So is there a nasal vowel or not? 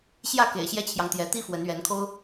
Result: no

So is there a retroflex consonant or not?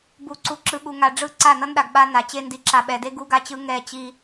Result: yes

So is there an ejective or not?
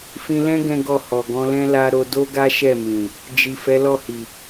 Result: no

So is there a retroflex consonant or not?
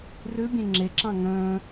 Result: no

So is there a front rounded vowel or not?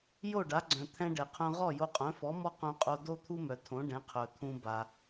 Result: yes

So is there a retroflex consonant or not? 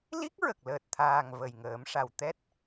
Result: yes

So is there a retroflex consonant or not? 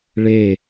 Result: yes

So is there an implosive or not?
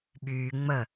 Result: yes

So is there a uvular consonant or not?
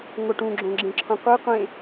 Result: yes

